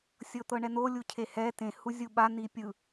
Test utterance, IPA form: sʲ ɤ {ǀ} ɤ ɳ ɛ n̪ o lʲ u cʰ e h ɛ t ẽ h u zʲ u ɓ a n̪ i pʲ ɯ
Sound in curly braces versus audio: incorrect: t̪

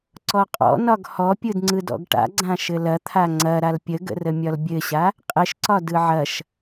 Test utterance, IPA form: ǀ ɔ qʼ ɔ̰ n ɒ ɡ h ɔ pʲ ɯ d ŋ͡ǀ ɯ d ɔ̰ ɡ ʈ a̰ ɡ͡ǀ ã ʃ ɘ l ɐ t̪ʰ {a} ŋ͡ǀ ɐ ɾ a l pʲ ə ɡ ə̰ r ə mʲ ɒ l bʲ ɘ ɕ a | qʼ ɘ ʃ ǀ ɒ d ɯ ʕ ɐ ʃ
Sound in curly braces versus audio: correct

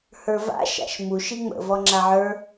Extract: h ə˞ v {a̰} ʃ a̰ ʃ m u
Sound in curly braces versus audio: correct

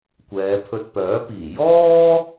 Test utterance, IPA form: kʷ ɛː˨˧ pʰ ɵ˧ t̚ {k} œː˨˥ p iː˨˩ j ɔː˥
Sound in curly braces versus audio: incorrect: p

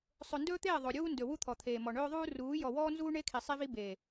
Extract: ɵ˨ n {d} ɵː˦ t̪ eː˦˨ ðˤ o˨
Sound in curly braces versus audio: correct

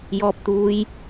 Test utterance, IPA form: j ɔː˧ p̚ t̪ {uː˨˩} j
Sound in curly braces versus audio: incorrect: uː˧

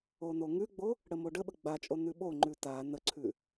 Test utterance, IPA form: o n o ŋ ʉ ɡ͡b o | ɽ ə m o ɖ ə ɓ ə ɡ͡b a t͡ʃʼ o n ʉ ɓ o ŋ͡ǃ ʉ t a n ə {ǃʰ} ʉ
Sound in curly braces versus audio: incorrect: ǀʰ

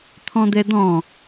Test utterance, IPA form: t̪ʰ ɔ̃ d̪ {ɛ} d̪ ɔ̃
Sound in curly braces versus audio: correct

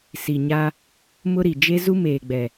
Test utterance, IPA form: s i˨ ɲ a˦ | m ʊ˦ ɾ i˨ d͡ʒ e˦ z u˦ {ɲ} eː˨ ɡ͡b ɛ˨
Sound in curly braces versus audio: incorrect: m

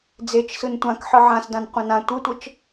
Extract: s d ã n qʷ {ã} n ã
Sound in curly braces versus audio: incorrect: ɑ̃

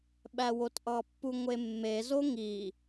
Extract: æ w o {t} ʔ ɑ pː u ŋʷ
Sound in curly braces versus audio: correct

